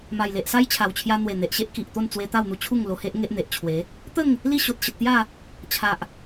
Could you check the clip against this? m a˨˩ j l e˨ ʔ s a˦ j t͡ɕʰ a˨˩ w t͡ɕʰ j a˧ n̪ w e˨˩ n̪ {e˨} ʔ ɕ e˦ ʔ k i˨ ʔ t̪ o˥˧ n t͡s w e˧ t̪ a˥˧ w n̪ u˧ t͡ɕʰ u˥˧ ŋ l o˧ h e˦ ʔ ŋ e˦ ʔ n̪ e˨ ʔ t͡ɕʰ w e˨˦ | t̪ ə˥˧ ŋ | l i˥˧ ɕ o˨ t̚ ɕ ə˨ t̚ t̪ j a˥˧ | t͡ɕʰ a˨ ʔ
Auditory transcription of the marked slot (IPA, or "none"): e˨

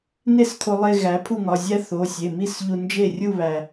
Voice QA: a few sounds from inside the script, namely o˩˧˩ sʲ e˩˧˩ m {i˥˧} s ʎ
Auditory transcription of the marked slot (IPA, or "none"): i˥˧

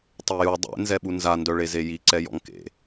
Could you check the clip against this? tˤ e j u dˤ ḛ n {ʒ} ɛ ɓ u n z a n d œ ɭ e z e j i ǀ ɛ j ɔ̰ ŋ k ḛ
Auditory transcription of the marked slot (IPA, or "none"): z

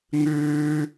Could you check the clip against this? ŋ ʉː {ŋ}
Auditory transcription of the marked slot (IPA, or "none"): none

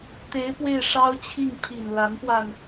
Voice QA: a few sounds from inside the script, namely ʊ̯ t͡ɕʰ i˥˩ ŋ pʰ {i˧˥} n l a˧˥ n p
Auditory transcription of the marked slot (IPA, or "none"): i˨˩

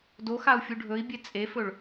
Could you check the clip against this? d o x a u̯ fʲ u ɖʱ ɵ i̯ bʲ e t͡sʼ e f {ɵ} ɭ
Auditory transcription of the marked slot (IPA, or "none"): ɵ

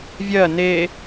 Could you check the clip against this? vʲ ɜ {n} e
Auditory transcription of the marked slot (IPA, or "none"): n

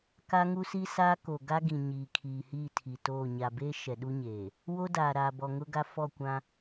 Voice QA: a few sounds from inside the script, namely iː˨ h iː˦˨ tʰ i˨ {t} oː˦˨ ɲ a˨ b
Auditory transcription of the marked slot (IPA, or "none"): t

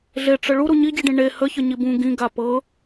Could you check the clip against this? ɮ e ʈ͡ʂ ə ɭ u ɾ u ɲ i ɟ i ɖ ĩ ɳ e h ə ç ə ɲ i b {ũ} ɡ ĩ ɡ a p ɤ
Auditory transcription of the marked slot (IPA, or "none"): ũ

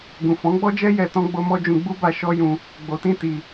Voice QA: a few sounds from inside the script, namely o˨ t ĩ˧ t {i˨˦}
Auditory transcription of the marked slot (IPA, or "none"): i˧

